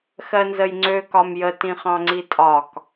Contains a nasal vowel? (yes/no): yes